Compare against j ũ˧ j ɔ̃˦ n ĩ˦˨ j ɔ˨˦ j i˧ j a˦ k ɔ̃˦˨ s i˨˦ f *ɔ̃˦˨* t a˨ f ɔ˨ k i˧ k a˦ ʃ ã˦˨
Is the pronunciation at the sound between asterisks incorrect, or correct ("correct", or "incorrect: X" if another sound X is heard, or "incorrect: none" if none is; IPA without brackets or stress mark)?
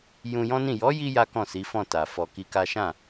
correct